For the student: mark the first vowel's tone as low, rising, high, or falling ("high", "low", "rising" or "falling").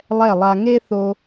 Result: falling